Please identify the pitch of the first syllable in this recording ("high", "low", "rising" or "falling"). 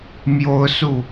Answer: high